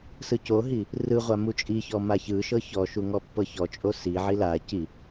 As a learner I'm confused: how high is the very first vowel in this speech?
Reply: high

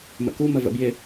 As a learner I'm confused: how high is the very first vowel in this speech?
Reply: mid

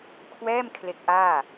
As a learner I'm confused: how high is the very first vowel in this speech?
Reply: mid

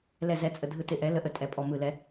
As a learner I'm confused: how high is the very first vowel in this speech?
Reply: mid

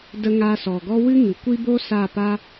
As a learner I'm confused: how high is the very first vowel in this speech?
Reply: mid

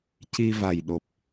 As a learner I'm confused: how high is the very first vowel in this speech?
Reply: high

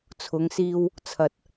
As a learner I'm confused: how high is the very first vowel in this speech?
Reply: high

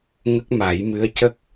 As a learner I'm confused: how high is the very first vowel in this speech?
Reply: mid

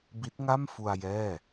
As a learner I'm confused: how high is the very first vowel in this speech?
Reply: high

